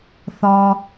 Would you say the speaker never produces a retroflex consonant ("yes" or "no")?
yes